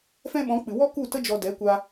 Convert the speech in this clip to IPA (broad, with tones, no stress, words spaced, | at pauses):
fɛ̃˦ ɓɔ̃˨˦k͡pɨ˨ wɔ˦ ku˦˨tə˦ d͡ʒɔ˧dɛ˨˦kʷa˧